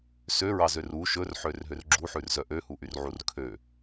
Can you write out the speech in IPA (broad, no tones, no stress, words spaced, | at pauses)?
søɹɑzør u ʃɵrħørɦør ɡ͡ǁuħʉrzœ ʔøhuʔyrʕur kʰø